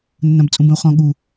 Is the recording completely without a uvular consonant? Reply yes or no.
no